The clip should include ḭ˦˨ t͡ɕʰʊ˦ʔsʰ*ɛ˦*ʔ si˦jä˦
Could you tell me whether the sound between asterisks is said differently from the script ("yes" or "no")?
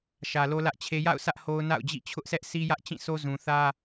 no